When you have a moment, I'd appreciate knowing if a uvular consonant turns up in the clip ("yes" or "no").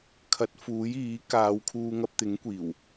no